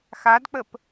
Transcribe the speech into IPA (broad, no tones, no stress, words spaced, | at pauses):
xadk͡pəp